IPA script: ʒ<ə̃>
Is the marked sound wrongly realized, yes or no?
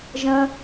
no